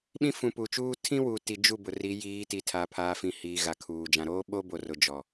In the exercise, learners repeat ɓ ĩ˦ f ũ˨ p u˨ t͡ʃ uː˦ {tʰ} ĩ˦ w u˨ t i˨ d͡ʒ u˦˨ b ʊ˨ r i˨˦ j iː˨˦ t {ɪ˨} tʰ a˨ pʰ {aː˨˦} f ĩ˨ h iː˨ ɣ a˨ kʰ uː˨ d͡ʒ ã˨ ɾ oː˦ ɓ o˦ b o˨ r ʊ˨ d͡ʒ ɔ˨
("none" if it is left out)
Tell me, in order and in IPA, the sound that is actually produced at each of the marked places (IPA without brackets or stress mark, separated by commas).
tʰ, i˨, aː˨